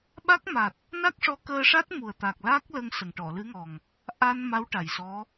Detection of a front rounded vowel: absent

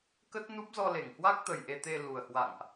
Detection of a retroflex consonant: absent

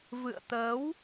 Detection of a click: absent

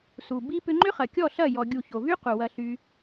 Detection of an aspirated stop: absent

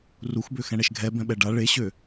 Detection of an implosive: present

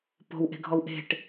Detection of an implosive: absent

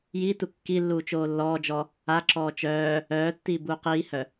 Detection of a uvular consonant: present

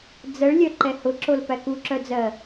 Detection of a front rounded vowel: present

